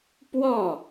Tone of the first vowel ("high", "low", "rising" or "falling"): falling